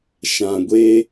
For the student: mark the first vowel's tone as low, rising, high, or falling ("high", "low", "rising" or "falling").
low